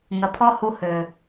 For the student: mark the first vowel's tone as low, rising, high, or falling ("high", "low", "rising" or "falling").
low